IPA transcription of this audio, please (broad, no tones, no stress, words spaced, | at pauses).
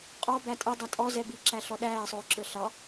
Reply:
qʼɔ bætʼədˤæ tʼɔzɛ bi ǁæɬɔɗæːsˤʊː ǁə˞ɬɑ